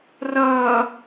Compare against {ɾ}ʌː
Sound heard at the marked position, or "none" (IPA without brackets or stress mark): r